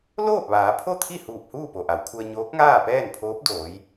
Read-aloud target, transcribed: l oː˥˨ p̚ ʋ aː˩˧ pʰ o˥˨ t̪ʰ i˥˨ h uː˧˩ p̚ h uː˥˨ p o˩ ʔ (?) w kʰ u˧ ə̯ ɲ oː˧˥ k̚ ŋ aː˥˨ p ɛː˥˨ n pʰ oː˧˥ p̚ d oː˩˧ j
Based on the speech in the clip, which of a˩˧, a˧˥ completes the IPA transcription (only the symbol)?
a˩˧